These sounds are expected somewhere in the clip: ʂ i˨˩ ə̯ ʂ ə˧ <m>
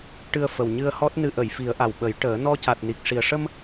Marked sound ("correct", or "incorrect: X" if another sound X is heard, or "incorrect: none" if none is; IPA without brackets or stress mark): correct